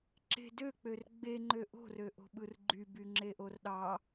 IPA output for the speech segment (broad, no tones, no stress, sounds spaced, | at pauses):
ǁ e̤ d ø k͡p ø r ɡ͡b e ŋ͡ǃ ø ʔ o̤ r ø ʔ o̤ ɓ ɯ r ɡ͡ǃ y b y ŋ͡ǁ e ʔ o r ɗ ɑ